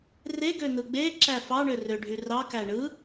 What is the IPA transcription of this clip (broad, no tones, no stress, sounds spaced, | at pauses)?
r e ɡ ø n̪ ɯ ɡ͡b e ǁ æ f ɑ ɳ ø r ø ɖʱ y r ɑ k æ ɳ ɯ